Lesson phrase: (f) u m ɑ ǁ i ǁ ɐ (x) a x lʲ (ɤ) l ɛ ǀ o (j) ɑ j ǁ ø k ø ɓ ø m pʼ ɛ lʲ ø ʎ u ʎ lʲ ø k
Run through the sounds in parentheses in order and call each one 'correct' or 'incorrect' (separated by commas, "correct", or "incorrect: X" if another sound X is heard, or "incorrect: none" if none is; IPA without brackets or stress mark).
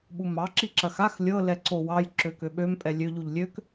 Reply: incorrect: ɓ, correct, correct, incorrect: w